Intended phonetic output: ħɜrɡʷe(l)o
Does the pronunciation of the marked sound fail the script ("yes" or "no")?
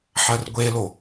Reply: no